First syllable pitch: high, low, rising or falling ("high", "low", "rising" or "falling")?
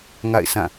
falling